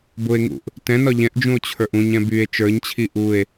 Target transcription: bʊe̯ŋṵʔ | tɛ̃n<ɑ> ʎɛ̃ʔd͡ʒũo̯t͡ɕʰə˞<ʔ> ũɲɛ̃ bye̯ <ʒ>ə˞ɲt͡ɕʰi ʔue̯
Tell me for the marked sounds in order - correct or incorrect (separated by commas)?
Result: incorrect, correct, incorrect